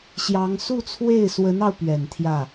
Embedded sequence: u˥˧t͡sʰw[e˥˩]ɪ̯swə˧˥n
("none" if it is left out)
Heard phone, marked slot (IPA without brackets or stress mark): e˥˩